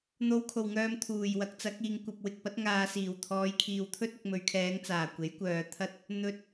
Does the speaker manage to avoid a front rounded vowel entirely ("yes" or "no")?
no